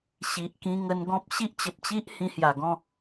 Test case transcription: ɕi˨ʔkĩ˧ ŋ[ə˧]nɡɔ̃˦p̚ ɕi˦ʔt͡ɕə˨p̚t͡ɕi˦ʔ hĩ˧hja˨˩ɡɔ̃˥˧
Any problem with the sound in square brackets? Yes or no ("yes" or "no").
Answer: no